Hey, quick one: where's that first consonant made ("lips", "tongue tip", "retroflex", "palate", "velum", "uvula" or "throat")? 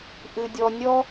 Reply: throat